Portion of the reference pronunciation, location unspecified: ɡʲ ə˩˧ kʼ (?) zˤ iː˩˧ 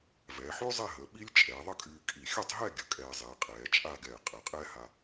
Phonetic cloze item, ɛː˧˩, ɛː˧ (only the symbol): ɛː˧